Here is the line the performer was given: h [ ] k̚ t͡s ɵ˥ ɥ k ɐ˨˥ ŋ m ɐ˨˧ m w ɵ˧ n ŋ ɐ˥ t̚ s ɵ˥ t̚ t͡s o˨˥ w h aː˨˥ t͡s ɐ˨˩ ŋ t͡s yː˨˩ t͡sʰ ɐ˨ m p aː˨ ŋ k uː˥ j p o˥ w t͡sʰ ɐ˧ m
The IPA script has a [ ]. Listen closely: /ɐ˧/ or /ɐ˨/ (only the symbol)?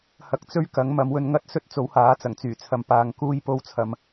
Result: ɐ˧